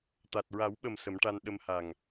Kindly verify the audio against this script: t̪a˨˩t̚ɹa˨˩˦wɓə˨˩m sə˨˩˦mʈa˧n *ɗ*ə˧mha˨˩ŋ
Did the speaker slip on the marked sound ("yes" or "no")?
no